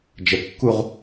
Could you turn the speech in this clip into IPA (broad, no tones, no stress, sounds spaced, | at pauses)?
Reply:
d͡ʒ ə kː u ʁ